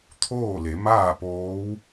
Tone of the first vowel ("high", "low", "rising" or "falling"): falling